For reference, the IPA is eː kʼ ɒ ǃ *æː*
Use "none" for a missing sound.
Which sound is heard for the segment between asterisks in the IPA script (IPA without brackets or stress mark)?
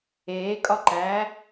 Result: æː